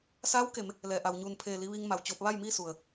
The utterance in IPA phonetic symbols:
s aː˧˥ w k e˩˧ m | l ɛː˩ ʔ a˩ w ɲ uː˧˩ n pʰ eː˧˩ l i˧ ʋ iː˧ ŋ m a˩ w t͡ɕ oː˧ p̚ ʋ a˥˨ j m iː˥˨ s u˩ ə̯

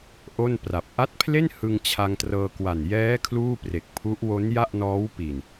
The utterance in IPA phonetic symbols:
ʔ o˥˩ n p r a˨˩ p̚ ʔ a˦˥ t̚ pʰ l e˥˩ n h ɯ˧ ŋ t͡ɕʰ a˧ ŋ t r ɤː˧ k w a˨˩ n j ɛː˦˥ kʰ l uː˥˩ p r e˨˩ k̚ pʰ u˦˥ ʔ w o˦˥ n j a˥˩ ʔ n ɔː˦˥ w p i˨˩ n

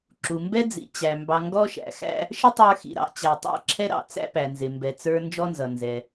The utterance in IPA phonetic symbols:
ǁ u˩ m b ɛ˥ d͡z ḭ˩ t͡ɕ æ˩ m b ɑ˨ ŋ ɡ ɔ˥ ʃ æ̰˩ x æ̰˥ | ʃ ə˥ tˤ ə˞˦ x ḭ˩ ɾ ɑ̰˨ t͡ɕ æ˨ tˤ æ̰˦ ǁʰ ɛ˥ ɾ ɑ̰˨ t͡s æ̰˦ p æ˩ n z ɪ˩ m b ɛ˨ t͡s ə˞˦ n d͡ʒ ɔ˥ n z ʌ˩ n z ɛ˩

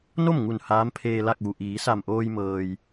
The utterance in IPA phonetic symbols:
n o˥˨ m ŋ u˧˩ n h aː˧˥ m pʰ eː˧ l a˥˨ k̚ ʋ u˩ ʔ iː˩˧ s a˧˩ m ʔ oː˧ j m ɤː˩ j

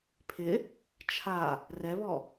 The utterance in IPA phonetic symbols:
pʰ ɪ | t͡ʃʰ a | r ɛ β ɔ

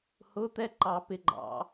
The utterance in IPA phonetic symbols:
h ʊ˧˥˧ t̪ ɛ˥˧ ǃ ɑ˨˩˦ p ɪ˩˧˩ ɡ͡ǃ ɑ̰˨˩˦

